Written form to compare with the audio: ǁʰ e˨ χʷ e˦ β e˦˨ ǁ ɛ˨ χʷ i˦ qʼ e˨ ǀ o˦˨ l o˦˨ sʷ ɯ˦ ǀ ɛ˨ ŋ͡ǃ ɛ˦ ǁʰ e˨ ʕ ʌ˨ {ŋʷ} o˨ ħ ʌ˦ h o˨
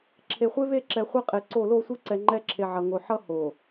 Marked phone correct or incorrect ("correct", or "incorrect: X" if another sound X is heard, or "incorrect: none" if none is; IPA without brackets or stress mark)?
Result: incorrect: ŋ